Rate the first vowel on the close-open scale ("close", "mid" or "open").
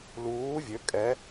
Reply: close